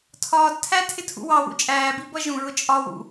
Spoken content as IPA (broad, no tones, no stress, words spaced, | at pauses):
tʰɒːdtʰæ tʰɪtʰṵwɑwṵ t͡ʃʼæːbi bʌʒũɹʊ t͡ʃʼɒwṵ